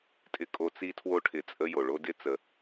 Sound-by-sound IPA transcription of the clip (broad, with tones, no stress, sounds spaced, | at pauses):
tʼ ɪ˦ kʼ o˦ t͡s i˦ tʰ w o˦ ʈʰ ɪ˨ t͡sʼ ə˦ j o˩ ɭ o˥ d ɪ˥ t͡s ə˨